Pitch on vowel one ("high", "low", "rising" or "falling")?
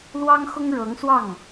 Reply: high